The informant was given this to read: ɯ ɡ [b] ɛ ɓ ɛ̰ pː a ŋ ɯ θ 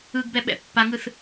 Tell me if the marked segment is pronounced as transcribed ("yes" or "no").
yes